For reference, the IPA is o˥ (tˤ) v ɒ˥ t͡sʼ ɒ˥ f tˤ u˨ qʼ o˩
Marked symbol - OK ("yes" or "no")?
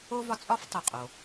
no